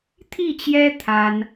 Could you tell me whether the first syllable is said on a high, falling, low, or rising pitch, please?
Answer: falling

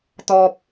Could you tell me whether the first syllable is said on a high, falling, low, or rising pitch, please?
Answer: low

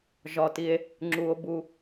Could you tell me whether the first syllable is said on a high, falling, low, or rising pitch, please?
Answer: low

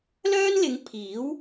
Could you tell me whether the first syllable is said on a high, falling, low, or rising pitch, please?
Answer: high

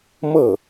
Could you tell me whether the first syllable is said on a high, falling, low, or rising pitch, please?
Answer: falling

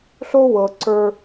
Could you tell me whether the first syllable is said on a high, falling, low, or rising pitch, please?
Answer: high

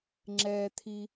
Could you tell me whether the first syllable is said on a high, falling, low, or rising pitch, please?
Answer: high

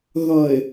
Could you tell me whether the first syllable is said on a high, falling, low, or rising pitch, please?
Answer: low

